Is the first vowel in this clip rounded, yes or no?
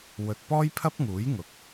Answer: yes